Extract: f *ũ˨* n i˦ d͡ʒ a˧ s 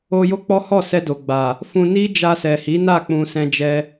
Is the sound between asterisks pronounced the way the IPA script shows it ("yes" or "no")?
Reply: no